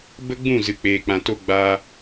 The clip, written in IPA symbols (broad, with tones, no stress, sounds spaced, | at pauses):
b ə˦ ɡ͡b ũ˦˨ z ɨ˨ k͡p eː˨ k͡p ã˨ t o˦ ɡ͡b a˧